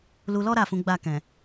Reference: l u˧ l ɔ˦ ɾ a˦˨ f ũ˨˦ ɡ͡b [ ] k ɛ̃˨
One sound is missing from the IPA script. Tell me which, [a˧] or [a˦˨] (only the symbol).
a˦˨